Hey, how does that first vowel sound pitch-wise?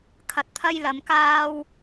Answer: low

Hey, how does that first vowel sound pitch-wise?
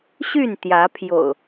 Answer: falling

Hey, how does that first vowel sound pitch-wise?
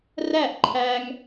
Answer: falling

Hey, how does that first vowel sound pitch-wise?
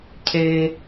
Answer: high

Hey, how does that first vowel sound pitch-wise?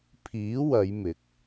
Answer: rising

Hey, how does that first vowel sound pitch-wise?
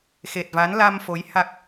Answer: low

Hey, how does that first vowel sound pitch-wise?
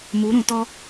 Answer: rising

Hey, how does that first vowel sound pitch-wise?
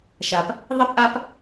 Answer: low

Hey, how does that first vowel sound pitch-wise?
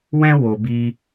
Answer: high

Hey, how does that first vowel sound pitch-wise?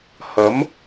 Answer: rising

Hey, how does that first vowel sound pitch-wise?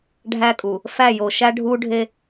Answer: high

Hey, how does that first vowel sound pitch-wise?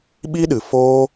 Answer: high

